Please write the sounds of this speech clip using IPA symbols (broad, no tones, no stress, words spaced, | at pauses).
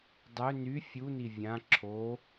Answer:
dˤø ny fʲuni vʲã ǁʰo